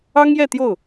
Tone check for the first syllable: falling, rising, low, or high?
high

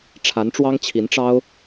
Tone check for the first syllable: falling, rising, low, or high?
rising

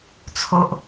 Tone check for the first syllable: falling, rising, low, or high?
low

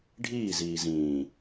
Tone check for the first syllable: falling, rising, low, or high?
falling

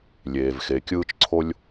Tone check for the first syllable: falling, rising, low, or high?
low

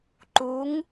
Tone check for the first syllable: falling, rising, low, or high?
rising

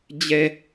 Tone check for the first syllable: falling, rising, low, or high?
low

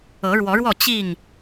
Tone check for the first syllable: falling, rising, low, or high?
rising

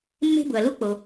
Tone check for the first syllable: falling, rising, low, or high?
high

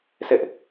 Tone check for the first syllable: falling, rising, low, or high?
high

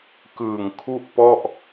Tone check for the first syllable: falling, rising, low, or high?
low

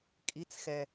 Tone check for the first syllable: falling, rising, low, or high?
rising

